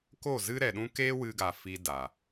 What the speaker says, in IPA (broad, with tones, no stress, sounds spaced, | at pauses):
k o˦˨ z ɨ˦ ɾ ɛ˨ ɗ ũ˦ k e˦ w ɨ˧ ɡ a˨ f i˧ d a˨